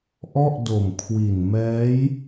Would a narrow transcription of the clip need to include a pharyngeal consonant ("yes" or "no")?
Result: no